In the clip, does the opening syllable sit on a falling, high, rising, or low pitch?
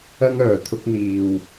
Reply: high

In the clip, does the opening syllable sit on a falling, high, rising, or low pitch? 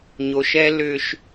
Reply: low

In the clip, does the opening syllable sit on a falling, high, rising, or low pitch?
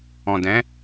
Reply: low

